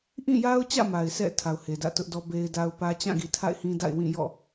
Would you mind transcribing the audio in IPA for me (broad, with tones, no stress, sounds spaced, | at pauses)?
ʔ ĩ˦˨ j a˦ ʊ̯ t͡ɕ ä̰˦˨ m a˨ ɪ̯ s ɛ̰˦˨ tʰ a˨ ʊ̯ h e˨ d ä̰˦˨ t ʊ˦ ʔ d ɔ˦ b e˦ ɪ̯ d a˦ ʊ̯ p ä˦ t͡ɕ ã˦˨ ɡ i˨ tʰ a̰˦˨ ɪ̯ h ĩ˦ d a̰˦˨ ɪ̯ w ĩ˦˨ j ɔ̰˦˨